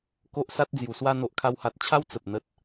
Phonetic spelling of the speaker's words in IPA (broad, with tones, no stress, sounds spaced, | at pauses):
k o˦ ʔ s a˦ t̚ d͡z j u˨˩ s w a˧ n̪ o˨ ʔ kʰ a˧ w h a˨ t̚ t͡ɕʰ a˦ w t͡s ə˨ p̚ n̪ ə˦ t̚